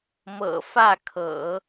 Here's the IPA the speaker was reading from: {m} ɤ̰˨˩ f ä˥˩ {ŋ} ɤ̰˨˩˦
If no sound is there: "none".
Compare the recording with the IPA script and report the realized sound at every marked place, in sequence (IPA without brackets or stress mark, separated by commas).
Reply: m, kʰ